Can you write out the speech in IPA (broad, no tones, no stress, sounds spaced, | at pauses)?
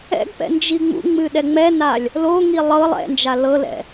ɛ̰ ɡ p ɛ̰ n d͡ʒ i ŋ͡m ṵ ŋ͡m ɨ ɗ ɛ ŋ͡m ɛ n a lʲ | l o ŋ i lˠ ɤ lˠ ɛ̰ n d͡ʒ a l ɤ l ɛ̰